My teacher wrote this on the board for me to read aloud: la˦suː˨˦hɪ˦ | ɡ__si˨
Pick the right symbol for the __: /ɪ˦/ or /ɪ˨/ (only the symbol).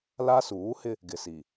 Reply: ɪ˨